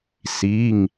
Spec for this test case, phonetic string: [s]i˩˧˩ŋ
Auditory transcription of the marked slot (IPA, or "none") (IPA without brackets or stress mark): s